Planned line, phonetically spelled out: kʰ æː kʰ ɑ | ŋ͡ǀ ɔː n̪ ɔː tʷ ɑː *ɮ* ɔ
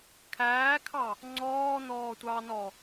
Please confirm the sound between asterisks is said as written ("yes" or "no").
no